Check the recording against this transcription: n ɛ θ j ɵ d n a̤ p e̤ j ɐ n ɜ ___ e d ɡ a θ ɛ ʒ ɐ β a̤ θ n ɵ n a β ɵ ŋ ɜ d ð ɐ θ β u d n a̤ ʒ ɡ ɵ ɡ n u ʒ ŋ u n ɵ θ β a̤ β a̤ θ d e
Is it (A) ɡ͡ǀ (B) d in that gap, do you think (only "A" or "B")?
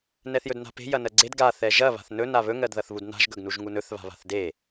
A